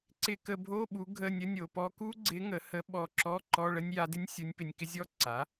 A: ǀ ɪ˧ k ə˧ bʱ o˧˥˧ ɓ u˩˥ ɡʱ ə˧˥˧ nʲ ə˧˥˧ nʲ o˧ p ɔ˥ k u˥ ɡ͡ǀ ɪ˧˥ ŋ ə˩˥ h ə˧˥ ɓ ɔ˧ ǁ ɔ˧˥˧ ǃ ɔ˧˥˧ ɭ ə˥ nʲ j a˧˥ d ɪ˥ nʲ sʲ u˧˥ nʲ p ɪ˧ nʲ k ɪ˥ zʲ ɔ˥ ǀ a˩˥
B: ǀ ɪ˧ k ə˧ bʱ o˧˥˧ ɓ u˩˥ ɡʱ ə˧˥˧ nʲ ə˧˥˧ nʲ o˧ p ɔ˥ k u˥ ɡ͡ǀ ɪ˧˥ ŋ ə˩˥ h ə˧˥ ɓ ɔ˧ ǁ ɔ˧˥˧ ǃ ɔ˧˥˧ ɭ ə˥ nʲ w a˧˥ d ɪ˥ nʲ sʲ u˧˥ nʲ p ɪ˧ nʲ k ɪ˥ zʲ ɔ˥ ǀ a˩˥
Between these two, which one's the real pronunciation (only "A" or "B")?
A